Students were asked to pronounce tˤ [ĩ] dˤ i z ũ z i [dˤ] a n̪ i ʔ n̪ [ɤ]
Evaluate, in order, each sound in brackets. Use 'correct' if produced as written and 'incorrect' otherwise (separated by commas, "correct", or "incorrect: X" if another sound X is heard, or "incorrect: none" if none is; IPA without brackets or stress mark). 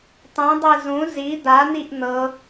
correct, incorrect: d̪, correct